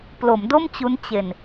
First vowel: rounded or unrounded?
rounded